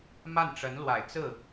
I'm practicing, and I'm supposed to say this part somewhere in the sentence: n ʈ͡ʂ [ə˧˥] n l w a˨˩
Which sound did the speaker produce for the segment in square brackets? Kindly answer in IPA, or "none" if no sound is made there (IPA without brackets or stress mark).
ə˧˥